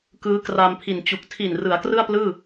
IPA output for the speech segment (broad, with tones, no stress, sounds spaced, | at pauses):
k ɯː˦˥ k r a˧ m pʰ i˨˩ n t͡ɕ u˨˩ k̚ tʰ i˨˩ n r ɯ˩˦ a̯ k r ɯ˥˩ a̯ p l ɯː˥˩